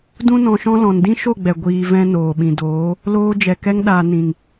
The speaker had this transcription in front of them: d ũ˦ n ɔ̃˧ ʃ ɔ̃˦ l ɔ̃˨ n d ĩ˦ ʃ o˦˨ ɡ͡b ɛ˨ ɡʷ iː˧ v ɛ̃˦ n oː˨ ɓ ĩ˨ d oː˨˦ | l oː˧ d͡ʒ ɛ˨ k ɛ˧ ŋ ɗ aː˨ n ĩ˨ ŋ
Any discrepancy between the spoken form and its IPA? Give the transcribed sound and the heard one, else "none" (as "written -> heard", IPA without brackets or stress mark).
none